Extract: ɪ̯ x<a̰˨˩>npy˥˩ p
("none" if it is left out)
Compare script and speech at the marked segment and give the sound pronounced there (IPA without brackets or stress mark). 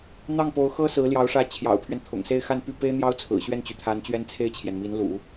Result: a˥˧